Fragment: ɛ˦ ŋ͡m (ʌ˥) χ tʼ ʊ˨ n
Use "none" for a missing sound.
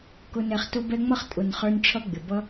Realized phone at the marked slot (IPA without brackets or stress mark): ʌ˥